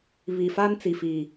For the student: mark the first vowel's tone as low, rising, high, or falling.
low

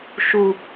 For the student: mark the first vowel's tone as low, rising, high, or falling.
low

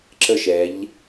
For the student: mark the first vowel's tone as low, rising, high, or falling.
falling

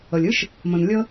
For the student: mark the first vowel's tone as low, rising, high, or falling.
low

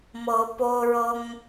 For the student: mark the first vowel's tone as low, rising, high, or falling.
rising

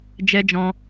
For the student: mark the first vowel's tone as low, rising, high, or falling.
high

